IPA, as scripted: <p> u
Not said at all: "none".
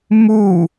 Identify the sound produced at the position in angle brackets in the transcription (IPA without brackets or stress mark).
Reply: m